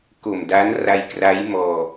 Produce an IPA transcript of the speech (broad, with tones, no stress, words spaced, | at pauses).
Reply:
ko˨˩mda˦˥nra˧jkra˦˥j mɔː˧